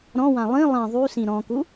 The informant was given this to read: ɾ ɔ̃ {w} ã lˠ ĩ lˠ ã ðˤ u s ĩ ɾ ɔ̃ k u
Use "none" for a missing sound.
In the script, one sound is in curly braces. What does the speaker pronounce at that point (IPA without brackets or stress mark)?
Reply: w